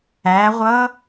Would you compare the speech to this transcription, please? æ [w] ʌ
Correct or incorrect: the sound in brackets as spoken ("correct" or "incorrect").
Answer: incorrect